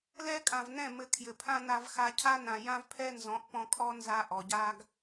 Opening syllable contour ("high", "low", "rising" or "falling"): high